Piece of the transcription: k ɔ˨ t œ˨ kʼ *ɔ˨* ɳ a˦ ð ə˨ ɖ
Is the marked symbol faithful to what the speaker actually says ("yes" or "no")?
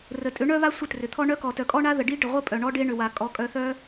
no